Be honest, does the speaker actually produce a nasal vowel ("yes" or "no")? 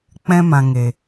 yes